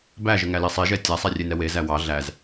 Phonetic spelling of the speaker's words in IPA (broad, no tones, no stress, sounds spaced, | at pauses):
b æ ʒ ə ŋ æ l e sˤ e ʒ ɛ tʲ æ sˤ ɛ rʲ e n ɛ w e z æ w ɑ ɮ æ z